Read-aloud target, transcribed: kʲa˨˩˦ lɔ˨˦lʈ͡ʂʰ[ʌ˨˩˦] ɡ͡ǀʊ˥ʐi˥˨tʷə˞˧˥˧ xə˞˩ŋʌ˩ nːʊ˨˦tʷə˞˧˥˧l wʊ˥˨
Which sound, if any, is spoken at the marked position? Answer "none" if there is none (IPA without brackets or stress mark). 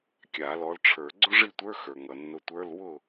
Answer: ə˞˨˩˦